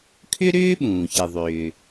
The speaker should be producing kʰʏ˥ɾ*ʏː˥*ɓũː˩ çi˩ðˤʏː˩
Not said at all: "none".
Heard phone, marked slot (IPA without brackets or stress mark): ʏː˥